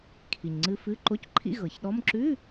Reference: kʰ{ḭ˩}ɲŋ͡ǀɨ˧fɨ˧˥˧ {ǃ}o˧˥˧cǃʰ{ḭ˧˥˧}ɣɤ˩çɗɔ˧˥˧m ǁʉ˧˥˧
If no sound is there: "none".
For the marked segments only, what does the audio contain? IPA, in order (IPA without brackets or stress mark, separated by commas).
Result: i˩, ǃ, ḭ˧˥˧